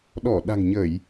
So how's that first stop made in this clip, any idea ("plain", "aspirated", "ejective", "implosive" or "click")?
implosive